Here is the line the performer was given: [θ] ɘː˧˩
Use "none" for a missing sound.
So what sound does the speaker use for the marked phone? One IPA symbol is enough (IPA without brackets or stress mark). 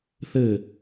θ